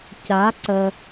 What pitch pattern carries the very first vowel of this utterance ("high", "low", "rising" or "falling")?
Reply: rising